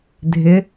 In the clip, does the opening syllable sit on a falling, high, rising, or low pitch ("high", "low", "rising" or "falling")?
rising